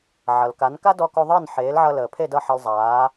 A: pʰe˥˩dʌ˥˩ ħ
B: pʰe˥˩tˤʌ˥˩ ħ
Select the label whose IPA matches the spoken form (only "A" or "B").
A